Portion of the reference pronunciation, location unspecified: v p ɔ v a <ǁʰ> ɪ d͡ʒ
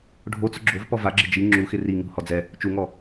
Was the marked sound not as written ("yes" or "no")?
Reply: yes